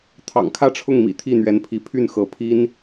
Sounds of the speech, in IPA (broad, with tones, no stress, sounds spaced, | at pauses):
t̪ʰ ɑ̰˨˩ ŋ kʰ ä˥˧ ʈ͡ʂʰ ʊ˥˩ ŋ m ḭ˨˩ t̪ʰ i˥˩ n̪ ɥ ɛ˧˥ n pʰ i˧˥ pʰ y˥˩ n x ɤ˧˥ pʰ i˥ n